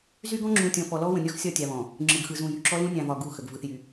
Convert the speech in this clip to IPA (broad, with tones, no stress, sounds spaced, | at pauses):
z y˦ ɡ ɔ̃˦ ŋ͡ǁ ũ˨ tʲ ɔ̃˨ f ɔ˨ l ɔ˦ w ə̃˨ nʲ ɔ˦ x sʲ ɒ˦˨ tʲ a˨ β ɔ̃˨ | ŋ͡ǁ ɯ˨ ɡ x ɯ˨ z ũ˨ j y˨ ǁ ɔ˦ l ũ˦ nʲ ã˨ v ɒ˨ ɡ u˦˨ x ə˨ ɡ v ɯ˨ θ j y˨